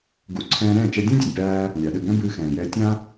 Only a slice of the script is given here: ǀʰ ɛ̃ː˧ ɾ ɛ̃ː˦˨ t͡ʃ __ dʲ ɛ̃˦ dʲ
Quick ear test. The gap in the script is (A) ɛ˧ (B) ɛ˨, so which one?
A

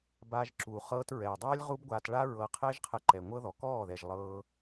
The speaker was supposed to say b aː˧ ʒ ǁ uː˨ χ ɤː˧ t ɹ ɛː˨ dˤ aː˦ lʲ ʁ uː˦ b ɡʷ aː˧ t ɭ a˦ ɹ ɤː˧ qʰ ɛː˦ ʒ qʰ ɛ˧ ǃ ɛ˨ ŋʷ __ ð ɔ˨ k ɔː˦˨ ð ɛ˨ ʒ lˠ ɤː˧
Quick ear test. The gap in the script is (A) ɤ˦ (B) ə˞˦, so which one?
A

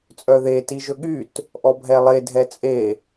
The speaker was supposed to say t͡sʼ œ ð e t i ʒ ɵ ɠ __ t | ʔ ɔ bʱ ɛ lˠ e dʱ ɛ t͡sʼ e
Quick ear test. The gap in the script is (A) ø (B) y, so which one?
B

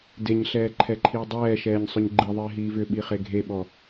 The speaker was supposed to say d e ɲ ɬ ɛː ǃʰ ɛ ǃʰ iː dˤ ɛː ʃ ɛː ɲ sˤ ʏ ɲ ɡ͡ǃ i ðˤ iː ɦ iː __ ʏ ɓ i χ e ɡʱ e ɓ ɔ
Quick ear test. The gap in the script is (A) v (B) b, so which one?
A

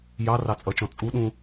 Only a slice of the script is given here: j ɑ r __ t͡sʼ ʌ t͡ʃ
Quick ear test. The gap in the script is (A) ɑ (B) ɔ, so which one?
A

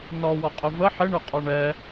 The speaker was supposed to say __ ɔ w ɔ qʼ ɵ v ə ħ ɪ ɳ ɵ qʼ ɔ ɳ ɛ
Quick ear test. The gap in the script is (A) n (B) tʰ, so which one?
A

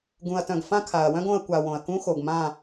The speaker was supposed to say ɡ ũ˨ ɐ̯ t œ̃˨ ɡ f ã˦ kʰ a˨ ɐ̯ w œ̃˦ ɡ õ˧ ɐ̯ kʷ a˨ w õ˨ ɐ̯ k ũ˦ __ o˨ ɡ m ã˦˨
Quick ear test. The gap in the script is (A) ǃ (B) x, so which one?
B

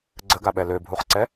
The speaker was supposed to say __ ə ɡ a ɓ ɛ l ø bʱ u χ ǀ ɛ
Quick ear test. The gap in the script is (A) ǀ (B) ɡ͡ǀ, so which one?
B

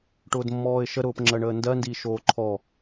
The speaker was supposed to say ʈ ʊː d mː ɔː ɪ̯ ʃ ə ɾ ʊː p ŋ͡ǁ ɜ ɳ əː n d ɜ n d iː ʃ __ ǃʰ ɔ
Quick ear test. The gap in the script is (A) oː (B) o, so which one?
A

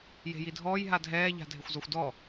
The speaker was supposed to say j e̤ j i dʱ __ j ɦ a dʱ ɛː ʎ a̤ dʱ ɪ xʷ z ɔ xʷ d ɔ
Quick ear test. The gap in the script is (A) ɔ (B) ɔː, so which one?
B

